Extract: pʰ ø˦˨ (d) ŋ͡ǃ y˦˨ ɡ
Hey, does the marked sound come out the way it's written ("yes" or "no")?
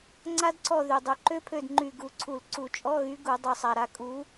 yes